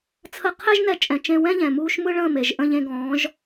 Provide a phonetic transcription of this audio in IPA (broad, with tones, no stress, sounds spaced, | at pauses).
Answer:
t͡sʰ ə˧ qʰ ɛ˦ ʒ n ɛ˧ t͡ʃʼ ɛ̃˨ t͡ʃ ẽ˧ w ɛ̃˦ ʎ ɛ̃˨ m uː˧ ʃ m ɯ˦ ɭ ə̃ː˦˨ m e˨ ʒ ʔ ə̃˦˨ ʎ ẽ˧ ɡ ɔ̃ː˨˦ ʒ